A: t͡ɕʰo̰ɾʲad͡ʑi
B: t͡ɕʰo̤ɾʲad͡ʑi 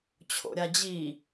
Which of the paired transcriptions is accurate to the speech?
A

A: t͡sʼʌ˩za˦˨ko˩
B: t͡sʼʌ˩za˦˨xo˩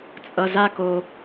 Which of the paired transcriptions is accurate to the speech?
A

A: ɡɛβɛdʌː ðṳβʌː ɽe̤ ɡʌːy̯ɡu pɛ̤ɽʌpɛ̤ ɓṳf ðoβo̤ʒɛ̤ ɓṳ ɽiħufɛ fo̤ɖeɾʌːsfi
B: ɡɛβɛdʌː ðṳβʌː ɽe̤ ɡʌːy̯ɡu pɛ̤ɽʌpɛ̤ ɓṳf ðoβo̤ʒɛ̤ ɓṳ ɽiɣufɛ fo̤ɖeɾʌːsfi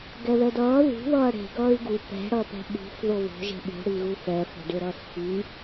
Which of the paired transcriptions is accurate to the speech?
B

